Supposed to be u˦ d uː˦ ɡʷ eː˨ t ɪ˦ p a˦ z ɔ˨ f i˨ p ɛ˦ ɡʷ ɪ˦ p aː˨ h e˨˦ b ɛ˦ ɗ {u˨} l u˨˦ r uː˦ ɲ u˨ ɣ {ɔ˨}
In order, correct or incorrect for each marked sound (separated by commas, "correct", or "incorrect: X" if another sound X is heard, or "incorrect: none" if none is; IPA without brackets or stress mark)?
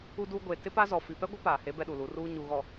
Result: correct, correct